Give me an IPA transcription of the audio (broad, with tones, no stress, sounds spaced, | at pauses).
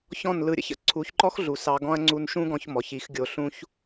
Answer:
ç ɔ̃˦˨ n l ɯ˧ ɾʲ ə̰˦ ç ə̰˦ ǀʰ u˨˦ ç ǃ ɔ˦ x ɮ u˨ s ɑ˧ ɡ ɔ̃˦ ɐ̯ ŋ͡ǀ u˧ n ʃ ũ˦ ɡ ɔ̃˧ ç m ɔ˨ ç i˨˦ x ɡʲ o˧ ɬ ũ˦ ç